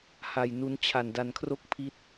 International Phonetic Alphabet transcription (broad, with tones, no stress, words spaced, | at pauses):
ha˧jnu˦˥nt͡ɕʰa˧n da˧nkʰro˥˩k̚ pʰi˥˩t̚